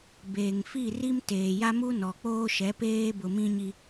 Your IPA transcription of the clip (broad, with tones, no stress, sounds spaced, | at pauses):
b eː˨ ŋ f i˦˨ r i˦ m t eː˨ j a˦ m u˦ n ɔ˨ k͡p oː˦ ʃ ɛ˨˦ p eː˦ b ʊ˨ m ĩ˦ ɲ i˦